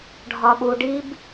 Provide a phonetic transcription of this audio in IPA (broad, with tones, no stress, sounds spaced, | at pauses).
ɖʱ ɒ˨ ɓ u˨ ɖ i˦ b